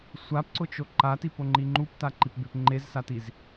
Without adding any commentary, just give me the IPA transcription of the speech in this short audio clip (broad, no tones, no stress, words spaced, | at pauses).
sʷapǀʊt͡ʃo ǃatipoŋ͡ǃi ŋ͡ǃuptaǃipbep ŋ͡ǃezsatiz